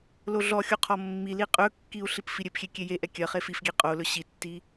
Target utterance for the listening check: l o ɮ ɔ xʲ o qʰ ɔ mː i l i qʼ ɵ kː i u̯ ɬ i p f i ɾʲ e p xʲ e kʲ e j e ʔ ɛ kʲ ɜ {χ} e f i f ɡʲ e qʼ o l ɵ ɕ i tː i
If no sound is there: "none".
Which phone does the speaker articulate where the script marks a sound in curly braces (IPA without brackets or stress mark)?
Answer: χ